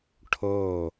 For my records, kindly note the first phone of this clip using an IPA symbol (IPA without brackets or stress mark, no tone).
ʈʰ